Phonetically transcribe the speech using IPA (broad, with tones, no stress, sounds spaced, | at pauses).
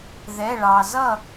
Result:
ð ɛ˩˧˩ ɭ ɑ˩ z ʌ˥˩